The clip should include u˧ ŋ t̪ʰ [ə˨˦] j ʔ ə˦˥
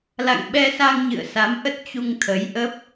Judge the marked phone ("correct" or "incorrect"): correct